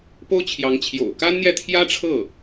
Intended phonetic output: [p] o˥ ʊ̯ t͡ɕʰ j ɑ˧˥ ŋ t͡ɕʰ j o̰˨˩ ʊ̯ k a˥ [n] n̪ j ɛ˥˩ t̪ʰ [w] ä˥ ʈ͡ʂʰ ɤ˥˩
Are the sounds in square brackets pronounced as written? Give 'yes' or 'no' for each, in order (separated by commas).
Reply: yes, yes, no